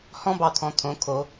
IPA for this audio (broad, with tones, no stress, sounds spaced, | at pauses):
h ɔ̃˦ b ɑ˨ t̪ʰ ɔ̃˨ t̪ʰ õ˨˦ kʰ o˨˦